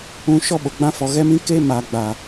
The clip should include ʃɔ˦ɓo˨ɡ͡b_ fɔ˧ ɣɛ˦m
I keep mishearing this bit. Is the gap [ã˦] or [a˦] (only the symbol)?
ã˦